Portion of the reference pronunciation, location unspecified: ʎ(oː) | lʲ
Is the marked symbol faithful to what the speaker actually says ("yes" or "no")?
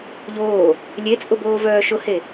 yes